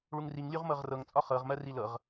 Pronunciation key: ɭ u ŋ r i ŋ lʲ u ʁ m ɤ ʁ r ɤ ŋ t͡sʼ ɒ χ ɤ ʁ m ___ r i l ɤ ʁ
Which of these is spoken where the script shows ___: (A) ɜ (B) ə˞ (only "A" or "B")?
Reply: A